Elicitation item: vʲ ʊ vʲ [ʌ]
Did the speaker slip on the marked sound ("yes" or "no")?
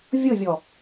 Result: yes